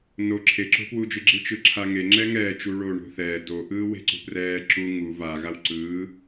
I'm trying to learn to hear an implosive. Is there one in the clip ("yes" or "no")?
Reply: no